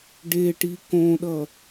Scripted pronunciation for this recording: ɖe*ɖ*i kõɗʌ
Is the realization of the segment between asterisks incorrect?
yes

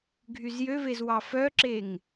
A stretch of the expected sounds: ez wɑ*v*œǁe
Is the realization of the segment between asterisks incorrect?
yes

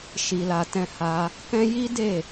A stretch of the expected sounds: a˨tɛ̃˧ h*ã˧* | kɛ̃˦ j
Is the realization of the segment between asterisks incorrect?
yes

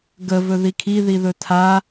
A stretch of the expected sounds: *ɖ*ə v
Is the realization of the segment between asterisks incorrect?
yes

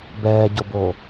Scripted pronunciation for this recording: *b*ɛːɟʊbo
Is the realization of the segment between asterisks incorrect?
no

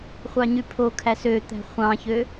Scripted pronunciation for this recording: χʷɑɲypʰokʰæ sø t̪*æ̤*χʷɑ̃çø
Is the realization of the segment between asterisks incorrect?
no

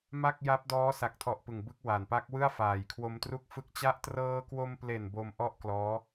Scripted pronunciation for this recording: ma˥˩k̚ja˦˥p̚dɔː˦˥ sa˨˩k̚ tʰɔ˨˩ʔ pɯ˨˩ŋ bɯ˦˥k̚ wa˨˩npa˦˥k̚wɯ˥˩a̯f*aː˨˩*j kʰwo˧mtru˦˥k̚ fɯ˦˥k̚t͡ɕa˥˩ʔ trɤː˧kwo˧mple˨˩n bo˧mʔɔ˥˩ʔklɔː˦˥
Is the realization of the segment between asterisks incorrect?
no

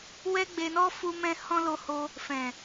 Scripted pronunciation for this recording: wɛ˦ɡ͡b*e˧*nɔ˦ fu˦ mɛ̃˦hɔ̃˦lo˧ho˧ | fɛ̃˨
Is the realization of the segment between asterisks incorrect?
no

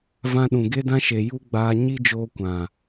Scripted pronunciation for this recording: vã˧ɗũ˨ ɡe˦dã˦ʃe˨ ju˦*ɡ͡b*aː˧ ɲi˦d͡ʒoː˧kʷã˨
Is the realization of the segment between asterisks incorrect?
no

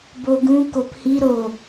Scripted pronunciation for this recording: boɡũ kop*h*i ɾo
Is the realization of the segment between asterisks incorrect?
no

